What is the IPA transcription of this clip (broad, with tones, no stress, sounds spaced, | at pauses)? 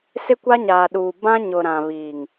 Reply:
s ɪ˦ kʷ a˦ ɲ aː˨ ɗ uː˨ b ã˦ ɲ ʊ˨ ɾ ã˨ β iː˨ ŋ